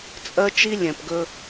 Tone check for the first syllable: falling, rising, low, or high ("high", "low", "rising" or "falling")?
high